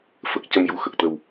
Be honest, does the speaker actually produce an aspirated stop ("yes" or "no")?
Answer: no